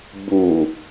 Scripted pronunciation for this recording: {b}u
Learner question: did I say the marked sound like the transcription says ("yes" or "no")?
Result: yes